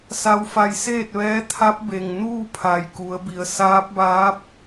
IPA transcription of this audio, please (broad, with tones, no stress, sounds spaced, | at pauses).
s a˧ w f a˧ j s eː˥˨ t̚ ʋ ɛː˧˥ t̪ʰ a˧˥ p̚ b e˩ ŋ n uː˥˨ pʰ a˩ j k u˩˧ ə̯ b i˩˧ ə̯ s aː˧˥ p̚ b aː˧˥ p̚